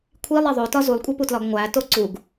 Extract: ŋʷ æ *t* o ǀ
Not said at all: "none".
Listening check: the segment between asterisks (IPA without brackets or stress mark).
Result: t